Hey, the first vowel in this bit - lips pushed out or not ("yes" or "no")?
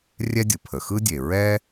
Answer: no